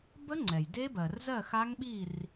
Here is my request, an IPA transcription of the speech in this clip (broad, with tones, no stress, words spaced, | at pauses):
bə˦˥ŋ͡ǀɛ˩j de˦˥bɜ˩r zɜ˥˨xa˦˥ŋ ɓi˥˨r